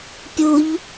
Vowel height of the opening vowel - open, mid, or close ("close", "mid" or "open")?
close